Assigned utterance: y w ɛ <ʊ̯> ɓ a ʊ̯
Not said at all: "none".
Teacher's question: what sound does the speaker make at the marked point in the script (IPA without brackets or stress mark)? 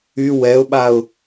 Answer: ʊ̯